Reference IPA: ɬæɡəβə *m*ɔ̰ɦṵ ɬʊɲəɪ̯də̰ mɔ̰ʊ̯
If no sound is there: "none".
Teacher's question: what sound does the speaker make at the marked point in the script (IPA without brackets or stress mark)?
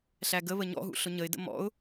ɲ